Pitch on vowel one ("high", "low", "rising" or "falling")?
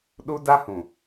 high